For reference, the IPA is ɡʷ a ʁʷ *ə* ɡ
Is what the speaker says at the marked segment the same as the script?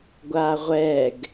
no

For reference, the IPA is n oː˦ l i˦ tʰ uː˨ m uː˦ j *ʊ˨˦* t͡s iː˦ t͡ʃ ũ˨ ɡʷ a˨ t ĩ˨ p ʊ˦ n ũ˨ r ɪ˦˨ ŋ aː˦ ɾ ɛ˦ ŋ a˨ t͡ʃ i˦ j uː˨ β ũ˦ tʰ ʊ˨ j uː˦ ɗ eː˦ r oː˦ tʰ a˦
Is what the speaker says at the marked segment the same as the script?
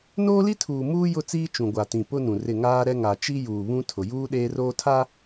no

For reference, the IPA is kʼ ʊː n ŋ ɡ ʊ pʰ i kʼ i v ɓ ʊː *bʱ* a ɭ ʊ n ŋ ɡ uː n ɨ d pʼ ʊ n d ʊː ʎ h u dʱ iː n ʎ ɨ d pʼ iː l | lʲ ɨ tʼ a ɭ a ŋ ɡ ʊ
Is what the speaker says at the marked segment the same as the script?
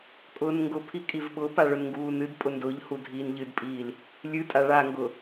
no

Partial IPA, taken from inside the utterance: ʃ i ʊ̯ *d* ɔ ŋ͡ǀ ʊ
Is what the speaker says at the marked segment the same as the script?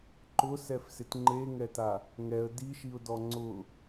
yes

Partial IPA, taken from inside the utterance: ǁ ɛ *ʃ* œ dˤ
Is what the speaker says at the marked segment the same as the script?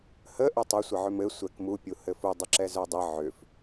no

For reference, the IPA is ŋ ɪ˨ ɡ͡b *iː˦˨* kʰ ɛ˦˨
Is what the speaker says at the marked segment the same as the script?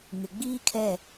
no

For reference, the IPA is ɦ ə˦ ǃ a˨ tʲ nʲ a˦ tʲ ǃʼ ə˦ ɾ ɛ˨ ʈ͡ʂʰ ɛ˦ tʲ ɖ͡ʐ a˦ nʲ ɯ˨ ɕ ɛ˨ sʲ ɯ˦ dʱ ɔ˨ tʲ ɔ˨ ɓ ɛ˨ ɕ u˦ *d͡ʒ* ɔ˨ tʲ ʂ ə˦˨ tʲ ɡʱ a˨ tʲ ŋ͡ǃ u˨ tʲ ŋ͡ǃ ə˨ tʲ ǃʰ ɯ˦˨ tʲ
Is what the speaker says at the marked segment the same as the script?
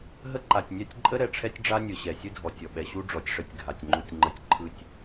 no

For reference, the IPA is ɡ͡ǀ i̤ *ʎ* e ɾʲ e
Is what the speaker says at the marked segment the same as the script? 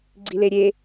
no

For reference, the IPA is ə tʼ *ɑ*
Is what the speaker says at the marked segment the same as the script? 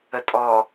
no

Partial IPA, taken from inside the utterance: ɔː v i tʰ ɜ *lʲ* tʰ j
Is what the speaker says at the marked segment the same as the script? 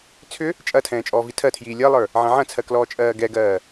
no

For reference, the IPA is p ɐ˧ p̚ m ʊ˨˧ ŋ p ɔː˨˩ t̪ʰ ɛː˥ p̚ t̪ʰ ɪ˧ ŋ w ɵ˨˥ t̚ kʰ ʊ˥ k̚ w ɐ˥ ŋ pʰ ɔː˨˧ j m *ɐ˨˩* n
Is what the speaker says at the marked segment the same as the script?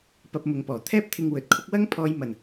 yes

